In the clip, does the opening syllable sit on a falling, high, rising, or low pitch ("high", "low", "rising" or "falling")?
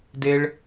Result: high